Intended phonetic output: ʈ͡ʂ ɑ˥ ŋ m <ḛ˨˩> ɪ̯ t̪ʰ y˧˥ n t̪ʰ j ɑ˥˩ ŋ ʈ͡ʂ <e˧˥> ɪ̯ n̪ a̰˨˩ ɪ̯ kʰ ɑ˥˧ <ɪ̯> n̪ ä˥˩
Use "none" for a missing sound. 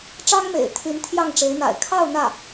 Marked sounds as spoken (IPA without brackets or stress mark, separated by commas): ḛ˨˩, e˧˥, ʊ̯